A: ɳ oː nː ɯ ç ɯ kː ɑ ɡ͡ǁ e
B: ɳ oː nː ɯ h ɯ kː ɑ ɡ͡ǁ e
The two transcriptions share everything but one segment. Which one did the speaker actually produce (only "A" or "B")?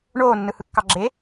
B